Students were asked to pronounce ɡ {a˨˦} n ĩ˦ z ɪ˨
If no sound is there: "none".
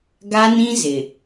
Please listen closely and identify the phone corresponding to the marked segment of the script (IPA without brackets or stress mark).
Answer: a˦